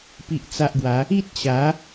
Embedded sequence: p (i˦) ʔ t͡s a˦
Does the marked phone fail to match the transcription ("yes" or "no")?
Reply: no